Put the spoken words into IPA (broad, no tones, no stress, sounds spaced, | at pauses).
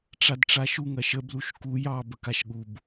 ʈ͡ʂ a d ʈ͡ʂ a ʃ u ŋ ɐ ʃ ə b l u ʃ k u j ɑ b ə k a ʃ ɠ u b